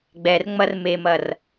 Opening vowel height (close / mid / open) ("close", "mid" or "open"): mid